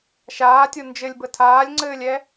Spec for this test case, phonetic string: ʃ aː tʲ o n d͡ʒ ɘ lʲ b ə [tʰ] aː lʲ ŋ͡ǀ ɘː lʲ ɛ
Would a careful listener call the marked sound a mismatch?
no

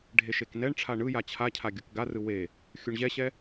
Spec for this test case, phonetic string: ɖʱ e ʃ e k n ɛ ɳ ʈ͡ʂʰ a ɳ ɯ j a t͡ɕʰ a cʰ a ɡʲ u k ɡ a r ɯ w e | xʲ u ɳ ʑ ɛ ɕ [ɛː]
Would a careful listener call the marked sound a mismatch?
yes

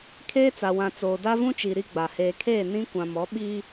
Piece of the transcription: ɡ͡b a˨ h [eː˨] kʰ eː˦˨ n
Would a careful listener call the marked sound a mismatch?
no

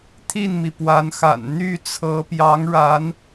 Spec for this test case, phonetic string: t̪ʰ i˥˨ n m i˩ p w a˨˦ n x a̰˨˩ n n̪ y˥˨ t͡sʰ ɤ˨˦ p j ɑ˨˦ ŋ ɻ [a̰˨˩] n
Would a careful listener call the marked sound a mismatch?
yes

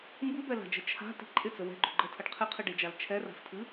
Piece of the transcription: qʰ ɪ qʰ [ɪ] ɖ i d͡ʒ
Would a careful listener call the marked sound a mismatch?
yes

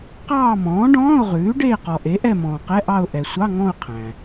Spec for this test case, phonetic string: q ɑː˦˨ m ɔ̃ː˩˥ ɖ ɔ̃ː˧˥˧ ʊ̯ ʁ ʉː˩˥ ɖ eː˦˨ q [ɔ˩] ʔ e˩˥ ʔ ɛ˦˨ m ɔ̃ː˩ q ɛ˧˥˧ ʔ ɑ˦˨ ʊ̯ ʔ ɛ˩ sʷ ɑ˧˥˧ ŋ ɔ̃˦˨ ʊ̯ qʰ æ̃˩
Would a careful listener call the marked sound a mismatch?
no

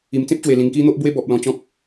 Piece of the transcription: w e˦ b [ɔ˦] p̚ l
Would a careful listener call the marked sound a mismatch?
yes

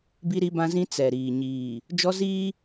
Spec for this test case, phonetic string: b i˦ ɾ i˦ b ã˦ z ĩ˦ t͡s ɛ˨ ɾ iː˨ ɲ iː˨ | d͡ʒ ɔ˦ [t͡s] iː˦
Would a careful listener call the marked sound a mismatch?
yes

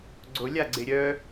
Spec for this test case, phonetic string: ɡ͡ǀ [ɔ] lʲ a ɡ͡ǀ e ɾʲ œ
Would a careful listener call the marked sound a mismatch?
yes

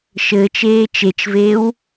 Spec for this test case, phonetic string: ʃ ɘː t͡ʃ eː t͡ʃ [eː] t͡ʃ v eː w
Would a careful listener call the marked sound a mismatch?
yes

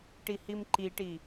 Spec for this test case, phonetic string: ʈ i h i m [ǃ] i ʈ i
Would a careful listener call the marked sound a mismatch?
no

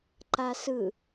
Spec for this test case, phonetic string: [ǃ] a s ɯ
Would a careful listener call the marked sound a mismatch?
no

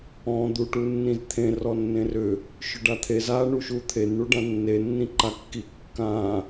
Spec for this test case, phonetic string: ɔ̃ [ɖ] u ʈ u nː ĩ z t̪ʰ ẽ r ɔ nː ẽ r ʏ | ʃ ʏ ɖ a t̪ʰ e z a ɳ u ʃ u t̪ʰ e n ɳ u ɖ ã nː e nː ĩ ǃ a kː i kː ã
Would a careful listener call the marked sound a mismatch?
yes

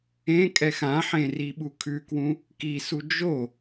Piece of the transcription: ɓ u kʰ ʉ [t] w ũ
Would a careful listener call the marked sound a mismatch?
yes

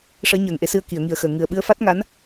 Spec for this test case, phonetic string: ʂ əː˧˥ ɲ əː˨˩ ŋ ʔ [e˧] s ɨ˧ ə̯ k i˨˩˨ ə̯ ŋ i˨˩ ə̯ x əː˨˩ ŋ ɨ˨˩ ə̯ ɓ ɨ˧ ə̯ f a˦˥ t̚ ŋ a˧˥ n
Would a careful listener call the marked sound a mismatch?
no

